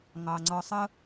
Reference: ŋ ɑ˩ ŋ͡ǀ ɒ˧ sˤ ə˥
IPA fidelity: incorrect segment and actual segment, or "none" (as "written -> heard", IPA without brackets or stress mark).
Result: none